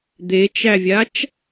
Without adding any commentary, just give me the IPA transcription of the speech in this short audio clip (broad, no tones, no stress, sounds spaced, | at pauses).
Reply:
d̪ e t͡ʃ æ vʲ a t͡ʃ